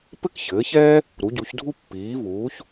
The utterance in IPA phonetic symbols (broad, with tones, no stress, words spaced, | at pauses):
pɘ˥k çɘː˩˥çɛː˥ | ɾu˩˥ɟu˩˥çdʱu˥ pːiː˩˥vuː˩˥ç